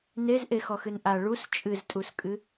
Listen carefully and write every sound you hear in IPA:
n e z ʔ e x ɔ x ɨ n ʔ a ɭ u s t͡ʃʼ ɨ z tʼ u s kʼ ɨ

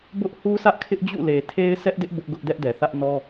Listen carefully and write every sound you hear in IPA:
b ʊ˦ ʔ h u˦ s ä˦ ʔ kʰ ɪ˦ ʔ d͡ʑ ṵ˦˨ l e˨ tʰ e˦ ɪ̯ sʰ ɛ˦ ʔ d ɪ˦ ʔ b ʊ˦ ʔ ɡ ʊ˦ ʔ d ɛ˦ ʔ d ɛ˨ θ ä˦ ʔ n ɔ˦

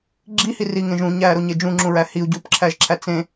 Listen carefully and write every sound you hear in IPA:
ɡ͡ǁ i h i r i ŋ ẽ ʒ ũ ɲ æː ɾ o ɲ e d͡ʒ ũ ŋ͡ǁ ũ ɹ æ h i u̯ ɟ uː p ǁʰ æ ʒ ǁʰ æ t͡s ẽ

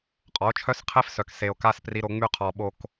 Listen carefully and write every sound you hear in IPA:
qʼ ɔ˨˦ o̯ t͡ʃʰ œ˦ s qʰ e˦ f s œ˨ k s e˨ o̯ k a˦ s p r i˦ ɾ o˦ ŋ͡m y˦ qʰ ɔ˨ ɓ o˨ k

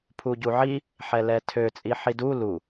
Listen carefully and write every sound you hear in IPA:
pʰ u ɟ u ʕ i | ħ ɛ l ɛ tʰ ø t͡sʼ i ħ i d u l u

